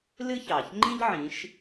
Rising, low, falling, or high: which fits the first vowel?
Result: high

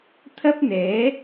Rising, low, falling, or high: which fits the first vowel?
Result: high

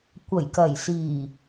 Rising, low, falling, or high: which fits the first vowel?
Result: low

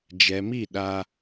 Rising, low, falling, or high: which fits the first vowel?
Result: low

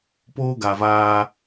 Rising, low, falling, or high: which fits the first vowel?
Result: high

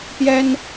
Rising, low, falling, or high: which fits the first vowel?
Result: high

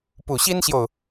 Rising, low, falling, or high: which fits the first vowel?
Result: low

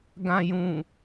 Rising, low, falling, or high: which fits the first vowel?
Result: low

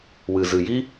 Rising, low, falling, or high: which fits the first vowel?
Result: low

